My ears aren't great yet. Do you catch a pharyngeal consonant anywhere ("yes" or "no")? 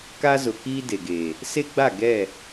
no